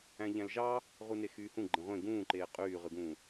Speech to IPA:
æ̃ ʎ æ̃ l ʒ ɑ | ʁ u n e x yː h ũ ɡ͡ǃ ẽ ʁʷ ẽ ɡ ũː ǃ eː qʼ yː ʁ ɯ ɡ ũː

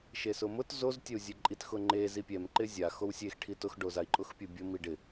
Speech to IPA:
ʃ e s ʊ m ʊ t z o z tʲ ɛ u̯ zʲ e ǃʼ i t x ʊ ŋ͡ǃ e z i pʲ ɛ m ǃ ɪ zʲ a x o w sʲ e x ʈʰ i t ʊ x ɖ o z a i̯ ǃʼ ʊ x pʲ ʊ bʲ ʊ m i ɖ ɪ

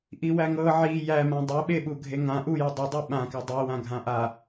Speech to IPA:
ʔ i w æ ŋ ɤ ʕ i j æ m ã dˤ e ɓ e ɓ u ɡʱ e ŋ ã ʔ u j e dˤ u dˤ i ɓ ã k a dˤ i w ã ɡʱ ã ʔ a

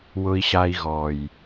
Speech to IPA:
w ʊ˧ i̯ ɕ a˧ i̯ ɣ ɔ˨ j

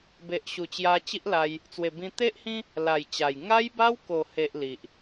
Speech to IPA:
b e˨ ʔ ɕ u˨˩ t͡ɕ j a˧ t͡ɕ i˦ ʔ l a˧ j | t͡s w e˨˩ b ĩ˧ t̪ e˦ ʔ h ĩ˦ | l a˨˩ j t͡ɕ a˨˩ j ŋ a˦ j b a˦ w k o˨˩ h e˨ ʔ l i˨ ʔ

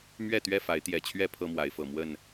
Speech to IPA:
m ɥ ɛ˥˨ t̪ ɥ ɛ˥˨ f a˨˦ ɪ̯ t̪ j ɛ˨˩ t͡ɕʰ ɥ ɛ˦ pʰ ɤ˦ m w a˨˦ ɪ̯ f ɤ˨˩ m w ə˥˨ n

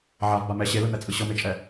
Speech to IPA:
ʕ a v b a m ɛ ɕ e l ɯ n̪ ɛ t͡sʼ ɯ ɕ ɤ m e t͡ʃʼ ɛ

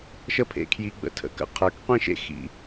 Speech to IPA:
ʃ ə˦ pʰ ḛ˧ kʰ j i˧ ɡ͡b ə̰˧ tʰ ə̰˧ k ə̰˦ qʰ ə˞˨˦ k qʷ ĩ˦ ʃ ḛ˦ x ḭ˧

